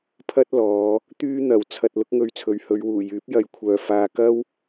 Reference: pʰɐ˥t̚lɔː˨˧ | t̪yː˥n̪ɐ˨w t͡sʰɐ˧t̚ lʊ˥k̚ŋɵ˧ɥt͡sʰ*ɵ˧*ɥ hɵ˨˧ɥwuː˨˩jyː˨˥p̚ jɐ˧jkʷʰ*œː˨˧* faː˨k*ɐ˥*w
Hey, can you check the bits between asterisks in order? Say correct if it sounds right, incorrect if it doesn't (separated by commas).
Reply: incorrect, incorrect, correct